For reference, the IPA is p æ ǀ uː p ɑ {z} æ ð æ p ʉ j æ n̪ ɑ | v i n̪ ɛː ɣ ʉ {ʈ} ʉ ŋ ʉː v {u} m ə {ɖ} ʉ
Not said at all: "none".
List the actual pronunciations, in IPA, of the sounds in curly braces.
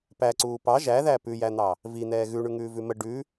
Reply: ʒ, ɳ, ʉ, ɖ

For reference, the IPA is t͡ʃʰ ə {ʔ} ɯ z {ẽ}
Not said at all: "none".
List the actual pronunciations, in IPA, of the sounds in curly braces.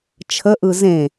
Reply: ʔ, ẽ

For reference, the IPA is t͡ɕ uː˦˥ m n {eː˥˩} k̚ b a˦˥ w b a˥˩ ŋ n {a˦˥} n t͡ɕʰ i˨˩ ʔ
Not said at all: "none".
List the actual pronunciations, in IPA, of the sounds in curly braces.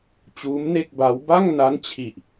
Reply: e˥˩, a˦˥

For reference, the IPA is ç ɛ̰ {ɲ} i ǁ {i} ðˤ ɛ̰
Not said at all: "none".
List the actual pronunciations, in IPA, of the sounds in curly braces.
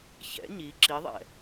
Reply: ɲ, i

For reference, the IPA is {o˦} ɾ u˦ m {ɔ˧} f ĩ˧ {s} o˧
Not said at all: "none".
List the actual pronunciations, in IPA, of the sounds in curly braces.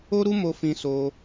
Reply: o˦, o˧, s

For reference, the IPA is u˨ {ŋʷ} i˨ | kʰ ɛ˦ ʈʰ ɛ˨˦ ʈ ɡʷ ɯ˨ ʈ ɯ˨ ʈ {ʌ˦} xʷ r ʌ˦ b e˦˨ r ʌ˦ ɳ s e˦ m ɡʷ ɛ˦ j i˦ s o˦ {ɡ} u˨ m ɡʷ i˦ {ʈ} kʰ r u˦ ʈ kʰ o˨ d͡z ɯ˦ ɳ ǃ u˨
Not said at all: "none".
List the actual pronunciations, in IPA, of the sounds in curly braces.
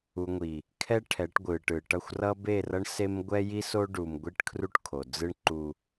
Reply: ŋʷ, ʌ˦˨, ɖ, ʈ

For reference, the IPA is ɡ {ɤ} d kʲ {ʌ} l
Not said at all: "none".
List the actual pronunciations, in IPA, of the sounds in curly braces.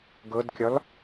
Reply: ɤ, ɒ

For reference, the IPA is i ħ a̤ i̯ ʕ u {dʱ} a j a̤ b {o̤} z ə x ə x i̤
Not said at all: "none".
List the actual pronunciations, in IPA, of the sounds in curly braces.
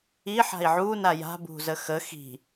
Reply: n, ṳ

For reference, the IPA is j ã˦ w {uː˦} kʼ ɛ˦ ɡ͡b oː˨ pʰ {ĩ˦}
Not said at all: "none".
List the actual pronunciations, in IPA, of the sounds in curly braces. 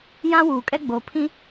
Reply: uː˨, ĩ˦

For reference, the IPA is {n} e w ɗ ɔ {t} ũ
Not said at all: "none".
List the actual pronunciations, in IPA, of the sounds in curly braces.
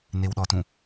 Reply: n, t

